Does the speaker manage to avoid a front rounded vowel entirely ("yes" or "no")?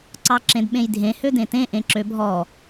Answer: no